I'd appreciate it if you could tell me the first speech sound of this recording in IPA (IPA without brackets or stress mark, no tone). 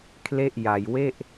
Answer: kʰ